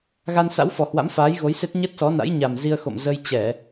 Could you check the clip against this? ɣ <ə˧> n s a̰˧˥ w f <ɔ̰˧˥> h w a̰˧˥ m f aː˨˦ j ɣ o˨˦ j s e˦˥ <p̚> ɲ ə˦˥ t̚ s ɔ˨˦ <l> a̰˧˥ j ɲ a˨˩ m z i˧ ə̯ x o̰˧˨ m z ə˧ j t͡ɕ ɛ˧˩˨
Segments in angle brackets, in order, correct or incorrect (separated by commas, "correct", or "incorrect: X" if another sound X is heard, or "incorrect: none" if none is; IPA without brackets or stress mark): incorrect: a˧, incorrect: ɔ˨˩, incorrect: t̚, incorrect: n